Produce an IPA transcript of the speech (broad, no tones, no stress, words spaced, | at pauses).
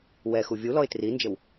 wɛxu vʲulɔɪ̯ trind͡ʒəw